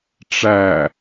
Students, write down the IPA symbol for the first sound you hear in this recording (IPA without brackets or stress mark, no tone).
ʈ͡ʂ